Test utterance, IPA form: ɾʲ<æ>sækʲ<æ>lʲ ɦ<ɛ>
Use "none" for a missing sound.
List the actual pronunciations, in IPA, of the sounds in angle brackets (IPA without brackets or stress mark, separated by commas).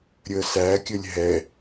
ə, ə, ɛ